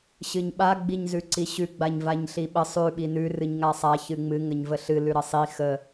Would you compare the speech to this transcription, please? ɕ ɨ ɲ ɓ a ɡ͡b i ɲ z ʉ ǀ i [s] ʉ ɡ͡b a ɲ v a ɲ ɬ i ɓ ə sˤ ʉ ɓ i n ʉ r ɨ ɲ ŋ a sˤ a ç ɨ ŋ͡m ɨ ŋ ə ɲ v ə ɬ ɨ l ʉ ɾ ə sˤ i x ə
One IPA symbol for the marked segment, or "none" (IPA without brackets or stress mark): ɕ